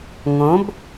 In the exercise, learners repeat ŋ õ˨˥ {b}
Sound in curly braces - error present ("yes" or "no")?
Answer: no